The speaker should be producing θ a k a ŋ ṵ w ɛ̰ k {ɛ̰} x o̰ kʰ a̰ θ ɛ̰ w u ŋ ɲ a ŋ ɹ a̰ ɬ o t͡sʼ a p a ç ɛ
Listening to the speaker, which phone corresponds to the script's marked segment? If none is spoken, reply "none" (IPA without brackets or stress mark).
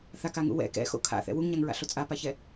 ɛ̰